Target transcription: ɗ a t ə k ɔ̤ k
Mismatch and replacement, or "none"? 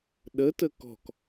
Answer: a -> ə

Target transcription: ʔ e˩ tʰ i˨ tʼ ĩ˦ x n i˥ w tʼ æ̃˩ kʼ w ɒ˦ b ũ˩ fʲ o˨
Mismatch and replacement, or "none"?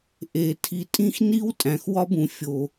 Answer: kʼ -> x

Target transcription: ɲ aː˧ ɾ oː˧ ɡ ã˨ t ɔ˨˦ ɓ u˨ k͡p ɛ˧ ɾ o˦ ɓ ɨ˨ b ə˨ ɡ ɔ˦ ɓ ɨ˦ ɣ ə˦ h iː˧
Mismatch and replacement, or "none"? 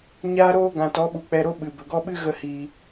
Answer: none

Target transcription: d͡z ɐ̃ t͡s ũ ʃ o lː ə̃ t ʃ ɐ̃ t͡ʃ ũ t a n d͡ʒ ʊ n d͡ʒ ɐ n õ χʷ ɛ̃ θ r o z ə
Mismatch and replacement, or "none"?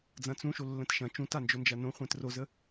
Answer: θ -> t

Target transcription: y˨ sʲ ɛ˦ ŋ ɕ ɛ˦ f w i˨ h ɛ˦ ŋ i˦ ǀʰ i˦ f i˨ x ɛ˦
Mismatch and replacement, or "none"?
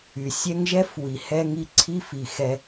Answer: ɕ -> ʒ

